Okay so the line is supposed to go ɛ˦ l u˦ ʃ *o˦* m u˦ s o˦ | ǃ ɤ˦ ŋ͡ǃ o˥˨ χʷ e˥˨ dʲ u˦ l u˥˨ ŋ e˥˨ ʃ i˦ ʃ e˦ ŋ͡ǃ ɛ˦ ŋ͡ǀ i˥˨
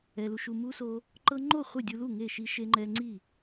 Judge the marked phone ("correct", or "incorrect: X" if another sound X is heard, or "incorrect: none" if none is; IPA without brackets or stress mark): incorrect: u˦